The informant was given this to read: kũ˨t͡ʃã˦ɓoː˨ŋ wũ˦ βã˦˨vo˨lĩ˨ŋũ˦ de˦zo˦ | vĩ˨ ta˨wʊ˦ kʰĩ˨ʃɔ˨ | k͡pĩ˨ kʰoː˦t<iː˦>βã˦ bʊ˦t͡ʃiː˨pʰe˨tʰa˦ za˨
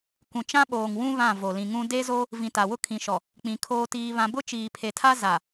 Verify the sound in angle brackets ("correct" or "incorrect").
correct